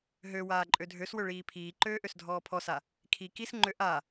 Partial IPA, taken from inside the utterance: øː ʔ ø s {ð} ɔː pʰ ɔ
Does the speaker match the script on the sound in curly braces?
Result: no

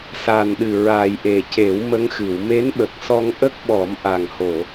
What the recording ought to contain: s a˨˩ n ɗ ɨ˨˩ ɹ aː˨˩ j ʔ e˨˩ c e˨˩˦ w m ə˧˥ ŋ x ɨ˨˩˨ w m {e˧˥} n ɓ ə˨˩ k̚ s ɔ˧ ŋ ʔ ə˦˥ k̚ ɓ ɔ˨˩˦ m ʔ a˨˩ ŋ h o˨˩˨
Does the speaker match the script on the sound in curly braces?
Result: yes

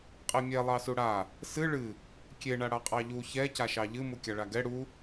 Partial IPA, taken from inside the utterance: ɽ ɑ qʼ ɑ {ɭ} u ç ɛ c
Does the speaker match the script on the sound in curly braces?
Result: no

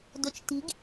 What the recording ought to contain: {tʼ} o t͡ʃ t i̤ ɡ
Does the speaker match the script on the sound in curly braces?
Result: no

